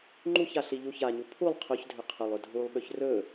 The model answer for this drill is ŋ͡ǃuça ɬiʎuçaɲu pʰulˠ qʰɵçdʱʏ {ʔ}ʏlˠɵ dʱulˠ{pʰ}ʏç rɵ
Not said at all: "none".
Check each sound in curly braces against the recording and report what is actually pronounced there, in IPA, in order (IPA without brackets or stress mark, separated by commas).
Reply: qʰ, ɓ